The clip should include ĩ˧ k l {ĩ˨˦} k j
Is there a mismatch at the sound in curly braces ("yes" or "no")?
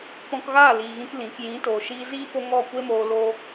no